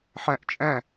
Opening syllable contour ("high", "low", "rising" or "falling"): rising